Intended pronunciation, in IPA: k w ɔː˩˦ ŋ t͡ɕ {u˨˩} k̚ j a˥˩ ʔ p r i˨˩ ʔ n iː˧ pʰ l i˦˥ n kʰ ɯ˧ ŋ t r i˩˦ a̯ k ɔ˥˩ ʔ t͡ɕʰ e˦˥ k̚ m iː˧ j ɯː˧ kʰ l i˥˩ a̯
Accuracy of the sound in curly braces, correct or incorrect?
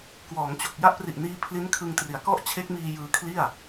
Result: incorrect